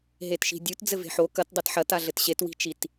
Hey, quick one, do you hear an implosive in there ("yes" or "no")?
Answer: no